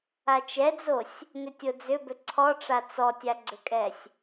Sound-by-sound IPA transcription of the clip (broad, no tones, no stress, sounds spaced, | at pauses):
a t͡ʃ ɛ d͡z o sʲ | n ʏ tʲ o d͡z ʏ b ʏ ǀʰ ɔ ʈ͡ʂ a t͡s ɔ tʲ a ɡ͡ǀ ʏ kʼ ɛ sʲ